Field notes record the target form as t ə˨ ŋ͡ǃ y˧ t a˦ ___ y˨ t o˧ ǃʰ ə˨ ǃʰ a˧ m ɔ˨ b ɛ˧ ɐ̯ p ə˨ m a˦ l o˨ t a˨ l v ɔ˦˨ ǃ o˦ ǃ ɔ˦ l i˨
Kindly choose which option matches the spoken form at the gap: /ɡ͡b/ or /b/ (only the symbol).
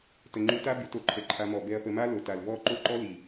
b